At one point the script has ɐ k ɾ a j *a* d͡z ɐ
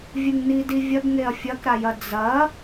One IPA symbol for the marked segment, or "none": ɐ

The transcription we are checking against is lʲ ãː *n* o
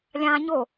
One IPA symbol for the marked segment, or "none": ɲ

